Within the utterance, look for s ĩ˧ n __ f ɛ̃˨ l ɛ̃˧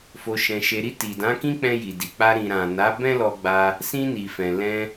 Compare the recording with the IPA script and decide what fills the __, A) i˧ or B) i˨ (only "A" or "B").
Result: B